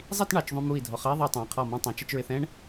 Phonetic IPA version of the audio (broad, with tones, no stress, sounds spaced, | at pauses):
zˤ i˥˧ t ɳ ɑ˩˧ t͡ʃ ðˤ ũ˧ m u˧˩ i̯ dʱ ɔ˩˧ χ ə˥ i̯ ðˤ ʌ˧ tˤ æ̃˩˧ qʰ ɔ˧˩ m ɑ̃˧ tˤ ũ˩˧ t͡ʃ ə˧ t͡ʃ ɹ ɪ˧ θ ɛ̃˥ ɳ